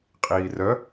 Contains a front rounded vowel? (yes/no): yes